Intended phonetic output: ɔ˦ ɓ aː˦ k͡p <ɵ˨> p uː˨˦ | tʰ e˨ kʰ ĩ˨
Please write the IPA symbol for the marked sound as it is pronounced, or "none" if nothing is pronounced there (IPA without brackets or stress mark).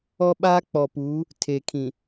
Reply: ɔ˨